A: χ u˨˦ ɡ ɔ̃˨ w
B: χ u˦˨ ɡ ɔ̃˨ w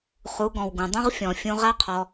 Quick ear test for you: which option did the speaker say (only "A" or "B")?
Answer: A